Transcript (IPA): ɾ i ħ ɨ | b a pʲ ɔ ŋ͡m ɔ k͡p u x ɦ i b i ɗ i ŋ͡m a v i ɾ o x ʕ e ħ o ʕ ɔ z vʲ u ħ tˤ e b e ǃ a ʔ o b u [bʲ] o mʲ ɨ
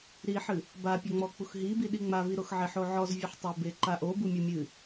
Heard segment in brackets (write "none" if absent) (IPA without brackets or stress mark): mʲ